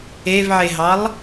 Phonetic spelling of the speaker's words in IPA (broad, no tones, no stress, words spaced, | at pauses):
evʕeɦɑlˠ